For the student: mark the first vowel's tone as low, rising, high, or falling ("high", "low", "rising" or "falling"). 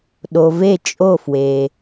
low